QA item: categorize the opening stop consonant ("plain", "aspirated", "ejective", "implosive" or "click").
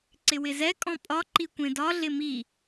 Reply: click